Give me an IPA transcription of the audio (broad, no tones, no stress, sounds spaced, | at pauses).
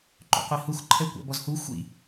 ǃ o̰ qʷ i h u x ǃʰ ɛ kʷ a̰ b ɔ z h u xʷ ḭ